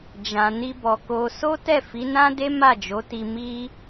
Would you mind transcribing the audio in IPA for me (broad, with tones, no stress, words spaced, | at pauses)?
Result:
d͡ʒã˨ni˧bɔ˨ko˧ so˦ tɛ˦˨fi˨˦nã˦de˦ ma˦˨d͡ʒo˨˦ti˧ mi˦